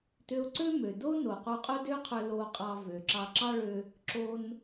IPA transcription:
t ø˧ ʊ̯ ǀ ø˥ m ø˩ d o˥ n o˩ q o˧ qʼ ɵ˥ d ø˥ qʰ ø˧ l o˧ qʼ ɑ˧ v ø˩ ǁ ɑ˧ ǁ ɑ˥ ɭ ø˧ | ǁ o˧ n

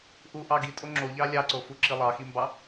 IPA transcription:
ʔ u ʔ ɑ ɡ i tʼ o ŋ͡ǁ o ʎ ɑ lʲ ɑ ǀ o f u ǁ i lˠ ɑ x i m b ɑ

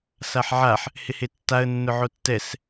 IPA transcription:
s a ħ ʕ a ħ | h ɪ h e tː a ə̯ nː ʊ ʕ o tː ɛ s

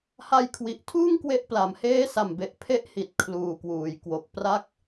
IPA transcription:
h a˧ j kʰ w i˨˩ ʔ tʰ uː˥˩ ŋ k w e˥˩ ʔ p l a˨˩ m h eː˦˥ s a˨˩ m b e˨˩ ʔ pʰ e˦˥ ʔ h i˨˩ t̚ kʰ l uː˨˩ k w uː˩˦ j k w o˨˩ k̚ p r a˦˥ k̚

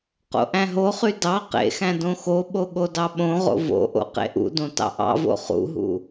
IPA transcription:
q o̰ ʔ æ̃ ɦ o χ y d ɑ q ḛ x æ̃ d õ x o ɓ o ɠ o d ɑ ɓ õ ʁ o̰ v o̰ ʔ o̰ q ḛ ʔ ṵ d õ t ɑ̰ ʔ ɑ̰ v o̰ χ ṵ ɦ ṵ

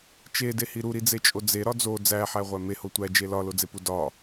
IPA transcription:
t͡ʃ e d e h i ɾ u ɾ i d͡z e t͡ʃʼ o d͡z e ɾ ɒ d͡z o d͡z æ ħ æ ʁʷ æ m e h o tʷ æ d͡ʒ e l ɒ l o d͡z e p u d ɒ

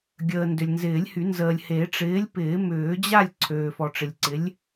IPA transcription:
ɡʲ əː˨ n d ʏ˨ lʲ n z ɪː˨˩˦ lʲ h y˨˩˦ n z əː˨ lʲ h e˨˩˦ ʈ͡ʂ ɪː˨˥ lʲ p ɪː˨˩˦ m ʏː˨˩˦ d͡ʑ a˥˨ lʲ ǀʰ øː˨ f ɔ˨ ʈ͡ʂ ɪ˨ lʲ ǀ ɪ˨˥ lʲ

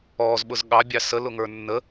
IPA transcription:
ɔː z ɓ ʊ z ɠ ɑ bʲ ɑ s ə l ʊ ŋ ə˞ nː ə

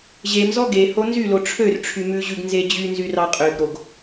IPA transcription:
ʑ e m z ɔ ɡ e h o n z y l o ʈ͡ʂʰ ø r ʈ͡ʂʰ y m ʉ ʑ ʉ ɡ n z e d͡ʑ y n z y r ɑ qʼ ø ɡ ɾ o ɡ

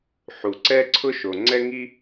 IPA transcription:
ħ u˩ ǀ ɛ˥ ǀʰ ʊ˥ ʃ o˩ ŋ͡ǀ ɛ˥ ŋ i˥

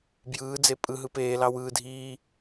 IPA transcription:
b j ɯː d͡z e pʼ ɯ ɦ ɯ p eː l ɑ w ɯː dʱ iː

